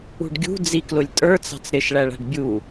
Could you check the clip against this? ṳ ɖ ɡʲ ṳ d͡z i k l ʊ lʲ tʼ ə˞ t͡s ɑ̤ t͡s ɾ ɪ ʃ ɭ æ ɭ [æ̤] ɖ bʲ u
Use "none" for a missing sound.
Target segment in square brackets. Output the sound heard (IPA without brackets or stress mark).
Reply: æ̤